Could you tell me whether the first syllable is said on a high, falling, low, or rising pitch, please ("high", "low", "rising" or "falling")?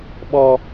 high